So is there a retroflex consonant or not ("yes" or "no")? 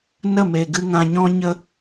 no